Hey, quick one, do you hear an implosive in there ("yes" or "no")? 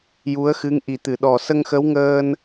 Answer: yes